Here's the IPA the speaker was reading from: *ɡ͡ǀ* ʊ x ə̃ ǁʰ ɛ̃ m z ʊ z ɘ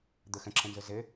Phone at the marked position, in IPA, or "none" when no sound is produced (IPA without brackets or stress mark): d̪